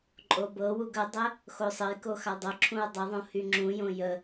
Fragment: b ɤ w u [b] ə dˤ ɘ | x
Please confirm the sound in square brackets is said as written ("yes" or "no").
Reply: no